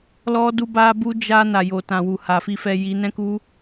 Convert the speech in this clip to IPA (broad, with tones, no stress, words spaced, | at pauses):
lɔ˧du˧ba˧ bu˧d͡ʒa˧ na˨jo˨ tã˨wu˨ ha˨fi˧fɛ˧ ji˧nɛ̃˦ku˦